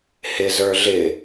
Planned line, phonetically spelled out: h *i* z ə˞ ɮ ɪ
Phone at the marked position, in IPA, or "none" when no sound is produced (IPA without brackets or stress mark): ɪ